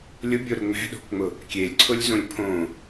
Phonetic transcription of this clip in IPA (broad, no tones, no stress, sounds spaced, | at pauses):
lʲ ʊ bʲ o ɾ ʊ ŋ͡m ɛ̤ ɗ o̤ k ŋ͡m ʊ | kʲ e lʲ ǀʰ ʊ lʲ z õ lʲ pʰ õ